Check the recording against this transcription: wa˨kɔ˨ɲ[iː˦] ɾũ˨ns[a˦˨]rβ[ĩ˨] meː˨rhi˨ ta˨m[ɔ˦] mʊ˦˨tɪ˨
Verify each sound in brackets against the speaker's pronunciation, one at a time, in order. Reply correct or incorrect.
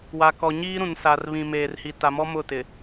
correct, incorrect: a˨, correct, correct

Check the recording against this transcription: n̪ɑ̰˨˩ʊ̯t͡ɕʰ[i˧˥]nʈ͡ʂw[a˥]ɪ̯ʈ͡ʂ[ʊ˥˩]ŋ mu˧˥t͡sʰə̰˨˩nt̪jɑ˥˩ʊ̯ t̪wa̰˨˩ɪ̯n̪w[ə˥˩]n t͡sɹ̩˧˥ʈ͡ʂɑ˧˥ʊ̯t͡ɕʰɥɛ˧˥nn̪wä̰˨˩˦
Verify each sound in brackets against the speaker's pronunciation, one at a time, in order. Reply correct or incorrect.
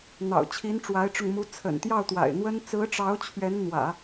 correct, incorrect: a˧˥, incorrect: ʊ˧, incorrect: ə˥

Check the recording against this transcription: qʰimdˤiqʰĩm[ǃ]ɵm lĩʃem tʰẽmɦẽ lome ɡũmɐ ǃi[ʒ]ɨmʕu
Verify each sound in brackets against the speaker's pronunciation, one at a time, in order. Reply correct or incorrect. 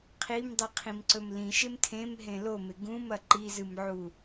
incorrect: ǀ, incorrect: z

